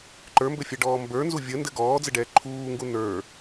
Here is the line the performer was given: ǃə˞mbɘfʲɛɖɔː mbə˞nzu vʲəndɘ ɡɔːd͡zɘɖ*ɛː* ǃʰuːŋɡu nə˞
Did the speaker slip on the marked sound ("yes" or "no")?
no